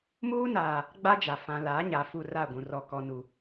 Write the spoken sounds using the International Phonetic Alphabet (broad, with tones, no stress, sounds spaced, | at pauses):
m uː˦ n aː˨ | ɡ͡b a˦ d͡ʒ a˨ f ã˨ l a˨˦ ɲ a˨ f u˦˨ r a˦˨ ɡʷ ũ˨ r ɔ˨ k ɔ˨ n u˨